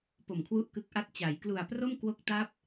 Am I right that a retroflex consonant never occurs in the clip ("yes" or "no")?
yes